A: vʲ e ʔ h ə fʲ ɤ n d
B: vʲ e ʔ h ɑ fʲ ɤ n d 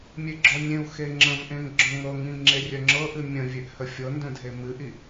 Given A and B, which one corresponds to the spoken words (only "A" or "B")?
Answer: A